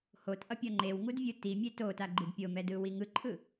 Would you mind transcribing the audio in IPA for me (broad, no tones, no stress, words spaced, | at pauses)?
hotʔʌpʲʌ ŋ͡ǃewŋudvʲɯ timʲe totaɡ͡ǃid pʲomɛdɯwi ŋɯǃʰɯ